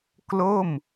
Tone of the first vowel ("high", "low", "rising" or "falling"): falling